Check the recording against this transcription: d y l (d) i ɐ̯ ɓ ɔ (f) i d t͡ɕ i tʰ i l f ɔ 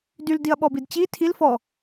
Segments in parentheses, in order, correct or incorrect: correct, incorrect: b

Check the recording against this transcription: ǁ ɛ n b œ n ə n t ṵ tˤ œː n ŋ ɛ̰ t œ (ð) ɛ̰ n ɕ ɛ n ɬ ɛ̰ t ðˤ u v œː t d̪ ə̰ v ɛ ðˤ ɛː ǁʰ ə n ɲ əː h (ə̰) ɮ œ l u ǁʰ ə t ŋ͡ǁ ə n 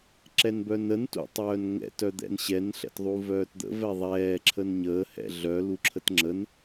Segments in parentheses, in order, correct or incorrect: incorrect: d̪, incorrect: ɛ̰

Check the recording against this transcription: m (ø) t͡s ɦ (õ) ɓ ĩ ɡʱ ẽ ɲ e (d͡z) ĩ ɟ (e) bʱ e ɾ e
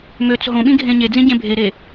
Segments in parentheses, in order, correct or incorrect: correct, correct, correct, incorrect: ẽ

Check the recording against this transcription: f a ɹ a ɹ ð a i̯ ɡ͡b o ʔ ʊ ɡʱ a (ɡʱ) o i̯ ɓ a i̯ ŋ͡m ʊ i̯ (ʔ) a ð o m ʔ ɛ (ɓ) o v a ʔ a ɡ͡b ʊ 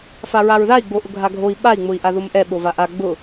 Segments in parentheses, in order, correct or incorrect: correct, correct, correct

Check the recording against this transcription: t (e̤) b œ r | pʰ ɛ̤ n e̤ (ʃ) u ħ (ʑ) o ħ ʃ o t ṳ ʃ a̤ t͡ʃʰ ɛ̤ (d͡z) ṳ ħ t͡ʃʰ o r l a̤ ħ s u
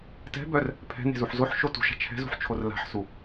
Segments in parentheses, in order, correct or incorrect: incorrect: ɛ̤, incorrect: z, incorrect: z, incorrect: z

